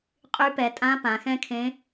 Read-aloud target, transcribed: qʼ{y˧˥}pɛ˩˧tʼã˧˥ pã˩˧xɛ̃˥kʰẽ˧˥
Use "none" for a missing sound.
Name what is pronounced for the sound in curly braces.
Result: y˧˥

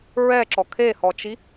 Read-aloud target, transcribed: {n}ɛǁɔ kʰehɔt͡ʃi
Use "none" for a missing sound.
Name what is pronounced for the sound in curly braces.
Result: ɹ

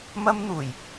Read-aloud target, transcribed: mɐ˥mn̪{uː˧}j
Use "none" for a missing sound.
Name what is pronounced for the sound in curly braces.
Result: uː˨˩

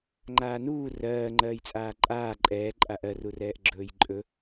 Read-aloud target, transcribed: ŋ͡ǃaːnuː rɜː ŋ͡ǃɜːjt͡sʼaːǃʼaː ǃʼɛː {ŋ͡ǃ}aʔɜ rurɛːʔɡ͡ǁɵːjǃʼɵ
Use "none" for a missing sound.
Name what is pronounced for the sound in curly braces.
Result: ǃʼ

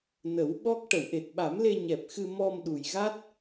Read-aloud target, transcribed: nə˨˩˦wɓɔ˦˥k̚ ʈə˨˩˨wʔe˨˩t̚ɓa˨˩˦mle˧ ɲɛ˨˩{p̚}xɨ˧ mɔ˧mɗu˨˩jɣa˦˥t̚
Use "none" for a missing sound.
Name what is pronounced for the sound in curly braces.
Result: p̚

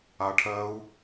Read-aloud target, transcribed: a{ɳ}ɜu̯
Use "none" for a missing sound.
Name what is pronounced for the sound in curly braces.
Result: ʈʰ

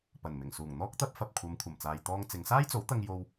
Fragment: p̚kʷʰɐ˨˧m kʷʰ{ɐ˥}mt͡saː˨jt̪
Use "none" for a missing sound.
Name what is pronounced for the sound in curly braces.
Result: ɐ˨˩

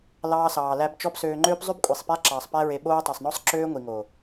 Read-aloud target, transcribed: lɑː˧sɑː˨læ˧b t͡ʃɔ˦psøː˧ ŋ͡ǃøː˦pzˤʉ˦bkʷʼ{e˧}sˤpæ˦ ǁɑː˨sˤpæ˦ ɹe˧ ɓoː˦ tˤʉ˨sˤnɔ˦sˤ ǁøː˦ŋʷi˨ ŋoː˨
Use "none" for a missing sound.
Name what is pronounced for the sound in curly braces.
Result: e˨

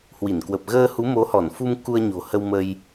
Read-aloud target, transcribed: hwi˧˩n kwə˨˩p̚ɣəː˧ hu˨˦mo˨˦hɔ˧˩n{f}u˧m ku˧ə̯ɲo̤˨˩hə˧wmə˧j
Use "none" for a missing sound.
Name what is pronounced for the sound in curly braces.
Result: f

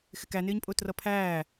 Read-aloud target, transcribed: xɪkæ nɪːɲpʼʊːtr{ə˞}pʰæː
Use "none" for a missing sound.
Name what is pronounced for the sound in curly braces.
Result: ʌ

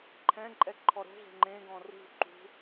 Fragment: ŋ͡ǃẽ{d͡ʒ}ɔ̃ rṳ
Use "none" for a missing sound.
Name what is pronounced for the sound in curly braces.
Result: ɡ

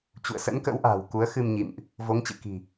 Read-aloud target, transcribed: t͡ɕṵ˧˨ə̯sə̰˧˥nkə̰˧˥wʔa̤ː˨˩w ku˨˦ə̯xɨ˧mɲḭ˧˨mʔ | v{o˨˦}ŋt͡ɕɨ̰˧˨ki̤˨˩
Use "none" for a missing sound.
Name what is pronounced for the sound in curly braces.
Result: o˨˦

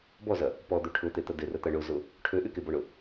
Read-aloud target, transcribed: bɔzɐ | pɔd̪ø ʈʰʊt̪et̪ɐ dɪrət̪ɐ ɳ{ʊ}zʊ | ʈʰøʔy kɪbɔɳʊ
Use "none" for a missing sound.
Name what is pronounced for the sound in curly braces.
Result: ʊ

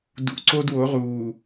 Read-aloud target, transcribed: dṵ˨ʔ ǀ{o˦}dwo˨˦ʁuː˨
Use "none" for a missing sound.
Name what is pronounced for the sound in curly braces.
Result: o˦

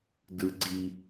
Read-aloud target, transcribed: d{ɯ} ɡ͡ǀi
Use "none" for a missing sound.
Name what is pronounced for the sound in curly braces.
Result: ɯ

